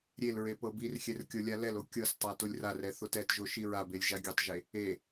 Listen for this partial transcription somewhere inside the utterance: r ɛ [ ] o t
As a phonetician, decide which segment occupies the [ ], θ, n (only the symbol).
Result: θ